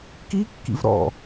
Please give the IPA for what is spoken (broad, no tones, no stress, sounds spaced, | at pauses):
k i kː ḭ v ɾ ɔ̰